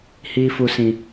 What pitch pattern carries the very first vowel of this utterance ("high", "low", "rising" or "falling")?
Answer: high